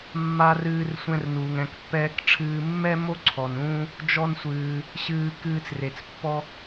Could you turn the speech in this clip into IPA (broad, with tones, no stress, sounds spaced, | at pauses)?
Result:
mː a˧ r ɨː˧ r sʷ ɛ̃˧ r n uː˩ ŋ ɛ̃˩ k pː ɛː˧ k ʈ͡ʂʰ ɨː˧ mː ɛ˥ m o˥ ǀʰ ɔ˩ n ũː˧ | d͡ʒ ɔ˧ n sʷ ɨː˩ | ɕ ɨː˧ k ɨː˧ t͡s r e˩ t͡s pː ɔ˧